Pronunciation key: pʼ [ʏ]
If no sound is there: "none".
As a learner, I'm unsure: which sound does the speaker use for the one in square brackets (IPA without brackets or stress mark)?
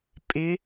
ɪ